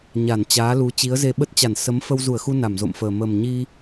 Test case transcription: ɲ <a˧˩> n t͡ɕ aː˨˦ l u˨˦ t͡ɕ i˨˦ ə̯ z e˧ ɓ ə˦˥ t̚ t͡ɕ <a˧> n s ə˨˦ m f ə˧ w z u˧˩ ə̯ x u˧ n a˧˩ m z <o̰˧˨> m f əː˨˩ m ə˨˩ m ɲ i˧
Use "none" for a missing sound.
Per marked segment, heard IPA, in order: a˧˩, a˧˩, o̰˧˨

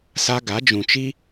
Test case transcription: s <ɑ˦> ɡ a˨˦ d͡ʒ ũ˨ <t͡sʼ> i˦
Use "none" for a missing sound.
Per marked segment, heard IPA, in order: a˦, t͡ʃ

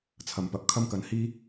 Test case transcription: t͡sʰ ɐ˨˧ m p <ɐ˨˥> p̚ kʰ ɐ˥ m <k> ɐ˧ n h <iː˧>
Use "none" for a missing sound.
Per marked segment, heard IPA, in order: ɐ˨˥, k, iː˧

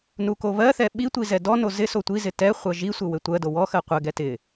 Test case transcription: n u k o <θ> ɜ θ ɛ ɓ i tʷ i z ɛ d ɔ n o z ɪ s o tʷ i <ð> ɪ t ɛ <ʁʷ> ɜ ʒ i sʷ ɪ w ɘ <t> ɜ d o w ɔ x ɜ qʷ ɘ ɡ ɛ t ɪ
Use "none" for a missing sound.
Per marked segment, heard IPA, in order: β, z, χʷ, tʷ

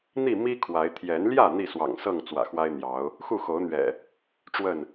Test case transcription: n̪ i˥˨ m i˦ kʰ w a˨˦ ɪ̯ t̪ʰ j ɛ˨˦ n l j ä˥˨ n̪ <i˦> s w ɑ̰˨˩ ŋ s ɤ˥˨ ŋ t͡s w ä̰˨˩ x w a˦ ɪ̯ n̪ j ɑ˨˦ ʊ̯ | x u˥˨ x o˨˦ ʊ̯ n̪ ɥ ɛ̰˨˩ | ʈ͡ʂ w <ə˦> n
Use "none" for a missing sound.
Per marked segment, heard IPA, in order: i˥˨, ə˥˨

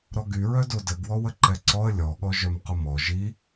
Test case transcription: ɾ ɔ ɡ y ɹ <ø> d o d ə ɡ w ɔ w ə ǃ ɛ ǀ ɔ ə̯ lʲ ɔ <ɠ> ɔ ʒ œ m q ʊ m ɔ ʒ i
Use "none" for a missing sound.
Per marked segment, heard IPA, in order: œ, ɠ

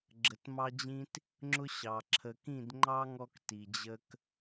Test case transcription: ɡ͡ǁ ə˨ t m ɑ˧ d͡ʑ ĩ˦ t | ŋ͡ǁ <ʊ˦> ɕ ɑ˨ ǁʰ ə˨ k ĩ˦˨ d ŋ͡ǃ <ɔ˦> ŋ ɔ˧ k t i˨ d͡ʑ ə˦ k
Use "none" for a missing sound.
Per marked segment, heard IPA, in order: ʊ˦, ɑ˦

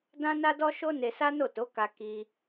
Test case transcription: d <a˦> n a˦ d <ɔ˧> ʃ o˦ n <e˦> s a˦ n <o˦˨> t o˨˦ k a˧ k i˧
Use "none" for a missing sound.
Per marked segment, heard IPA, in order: ã˦, ɔ˦, e˧, o˦˨

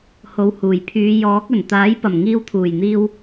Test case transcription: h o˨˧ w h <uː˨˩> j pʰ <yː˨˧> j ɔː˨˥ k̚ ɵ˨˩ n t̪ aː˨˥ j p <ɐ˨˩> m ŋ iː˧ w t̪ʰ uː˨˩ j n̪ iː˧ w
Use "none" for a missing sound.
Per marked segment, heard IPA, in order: uː˨˩, yː˨˧, ɐ˨˩

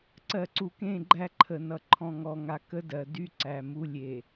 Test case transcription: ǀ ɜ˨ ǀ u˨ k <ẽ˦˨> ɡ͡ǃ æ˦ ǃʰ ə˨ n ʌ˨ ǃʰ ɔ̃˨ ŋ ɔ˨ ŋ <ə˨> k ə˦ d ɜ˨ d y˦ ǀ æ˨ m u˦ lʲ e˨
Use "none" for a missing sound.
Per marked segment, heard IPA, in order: ẽ˦˨, a˨

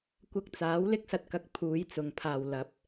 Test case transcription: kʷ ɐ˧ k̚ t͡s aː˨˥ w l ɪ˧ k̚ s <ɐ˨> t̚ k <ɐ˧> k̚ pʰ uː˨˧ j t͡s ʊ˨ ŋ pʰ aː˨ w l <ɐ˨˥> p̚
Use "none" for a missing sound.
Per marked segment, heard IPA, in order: ɐ˨, ɐ˨, ɐ˨˥

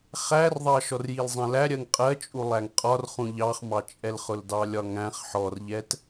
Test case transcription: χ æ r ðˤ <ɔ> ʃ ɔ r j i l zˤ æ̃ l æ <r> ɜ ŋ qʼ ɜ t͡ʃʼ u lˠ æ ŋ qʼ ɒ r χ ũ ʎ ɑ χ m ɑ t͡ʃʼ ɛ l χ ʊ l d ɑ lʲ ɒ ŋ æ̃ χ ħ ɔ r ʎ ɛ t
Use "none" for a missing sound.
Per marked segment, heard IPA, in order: ɑ, ɾʲ

